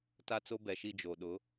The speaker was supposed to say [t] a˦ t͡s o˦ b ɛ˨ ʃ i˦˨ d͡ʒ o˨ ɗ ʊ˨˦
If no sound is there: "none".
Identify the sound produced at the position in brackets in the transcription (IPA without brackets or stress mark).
t